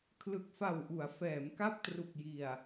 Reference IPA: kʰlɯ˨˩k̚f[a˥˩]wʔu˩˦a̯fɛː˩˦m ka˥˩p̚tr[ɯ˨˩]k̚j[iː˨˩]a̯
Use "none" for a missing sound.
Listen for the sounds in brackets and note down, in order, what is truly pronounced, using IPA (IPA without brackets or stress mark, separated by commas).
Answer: a˨˩, u˨˩, i˨˩